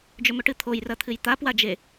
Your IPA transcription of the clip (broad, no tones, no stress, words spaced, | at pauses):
d͡ʒɵmɵʈɨt̪ʰoj rɐt̪ʰɨjt̪a pwad͡ʒe